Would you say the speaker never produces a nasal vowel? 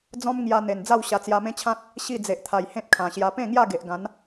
no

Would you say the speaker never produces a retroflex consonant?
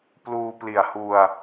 yes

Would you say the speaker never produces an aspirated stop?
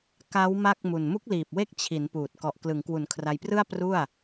no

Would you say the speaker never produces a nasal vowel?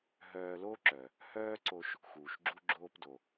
yes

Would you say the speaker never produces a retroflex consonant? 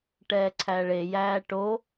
no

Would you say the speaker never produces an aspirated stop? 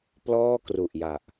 yes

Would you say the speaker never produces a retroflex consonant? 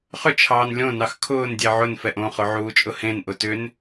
yes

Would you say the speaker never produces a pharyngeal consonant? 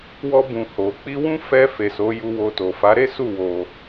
yes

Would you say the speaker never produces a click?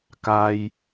yes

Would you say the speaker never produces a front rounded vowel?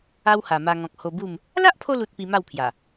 yes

